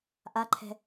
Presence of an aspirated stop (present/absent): present